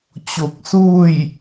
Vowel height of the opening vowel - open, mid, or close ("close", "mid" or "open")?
mid